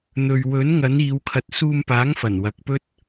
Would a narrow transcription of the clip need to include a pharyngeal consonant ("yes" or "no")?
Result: no